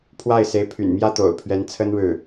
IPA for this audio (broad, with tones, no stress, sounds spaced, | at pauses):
pʰ w a˥˩ ɪ̯ s e˧˥ ɪ̯ pʰ y̰˨˩ n m j ä˥ t̪ o̰˨˩ ʊ̯ pʰ ɥ ɛ˧˥ n t͡sʰ ə˥ n ɻ ɻ̩˥˩